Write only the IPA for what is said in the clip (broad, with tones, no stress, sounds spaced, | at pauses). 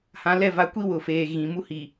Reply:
h ã˨˦ l ɛ˦˨ v a˨ kʷ i˦ w ʊ˨ f eː˨ ɣ ĩ˨ m u˦ h i˨